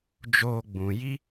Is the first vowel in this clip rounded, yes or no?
yes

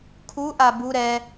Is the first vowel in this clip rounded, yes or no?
yes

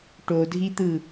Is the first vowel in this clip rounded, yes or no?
yes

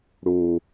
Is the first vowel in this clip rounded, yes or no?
yes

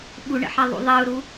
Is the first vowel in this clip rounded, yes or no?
yes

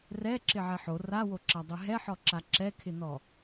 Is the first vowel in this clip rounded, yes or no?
no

